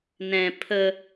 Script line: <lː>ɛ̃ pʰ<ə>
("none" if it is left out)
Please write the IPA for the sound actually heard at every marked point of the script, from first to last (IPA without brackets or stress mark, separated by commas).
n, ə